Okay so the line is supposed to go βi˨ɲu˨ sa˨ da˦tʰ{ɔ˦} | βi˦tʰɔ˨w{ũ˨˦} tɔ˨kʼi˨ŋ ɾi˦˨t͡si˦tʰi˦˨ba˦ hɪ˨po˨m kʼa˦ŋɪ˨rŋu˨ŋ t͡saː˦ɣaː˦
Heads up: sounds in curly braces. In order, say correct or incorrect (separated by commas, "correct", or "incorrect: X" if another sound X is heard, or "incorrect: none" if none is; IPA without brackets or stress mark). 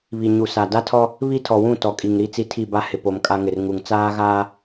correct, incorrect: ũ˦˨